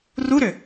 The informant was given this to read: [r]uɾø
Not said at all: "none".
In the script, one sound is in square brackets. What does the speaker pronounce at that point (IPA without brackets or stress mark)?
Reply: r